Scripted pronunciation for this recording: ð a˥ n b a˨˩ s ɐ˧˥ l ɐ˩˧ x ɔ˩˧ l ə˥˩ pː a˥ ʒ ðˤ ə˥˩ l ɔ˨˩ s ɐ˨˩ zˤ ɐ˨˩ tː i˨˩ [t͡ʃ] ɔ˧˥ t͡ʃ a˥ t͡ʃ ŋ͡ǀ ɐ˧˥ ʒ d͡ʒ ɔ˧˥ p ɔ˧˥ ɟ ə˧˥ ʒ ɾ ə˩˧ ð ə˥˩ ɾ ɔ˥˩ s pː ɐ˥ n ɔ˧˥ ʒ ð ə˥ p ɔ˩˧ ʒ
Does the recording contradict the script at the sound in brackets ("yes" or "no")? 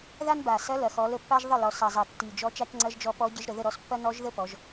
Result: yes